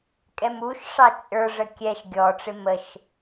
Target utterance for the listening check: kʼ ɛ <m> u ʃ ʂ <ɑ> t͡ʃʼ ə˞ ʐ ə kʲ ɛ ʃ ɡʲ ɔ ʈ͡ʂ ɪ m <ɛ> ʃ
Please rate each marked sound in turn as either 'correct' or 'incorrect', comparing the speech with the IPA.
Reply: correct, correct, incorrect: ə

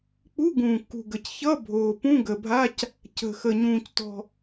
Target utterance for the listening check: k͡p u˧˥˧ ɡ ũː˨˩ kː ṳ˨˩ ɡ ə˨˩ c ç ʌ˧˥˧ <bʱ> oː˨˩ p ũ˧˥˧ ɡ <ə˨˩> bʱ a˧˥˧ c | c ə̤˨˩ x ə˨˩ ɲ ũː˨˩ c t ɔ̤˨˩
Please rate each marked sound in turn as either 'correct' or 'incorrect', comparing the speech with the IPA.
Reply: correct, correct

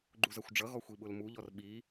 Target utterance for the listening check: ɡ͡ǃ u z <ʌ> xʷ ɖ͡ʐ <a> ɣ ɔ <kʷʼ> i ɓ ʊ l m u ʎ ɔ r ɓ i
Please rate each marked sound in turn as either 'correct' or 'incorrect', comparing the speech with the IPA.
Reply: correct, incorrect: ʌ, incorrect: xʷ

